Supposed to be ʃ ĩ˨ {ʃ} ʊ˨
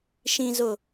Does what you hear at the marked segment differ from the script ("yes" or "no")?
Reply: yes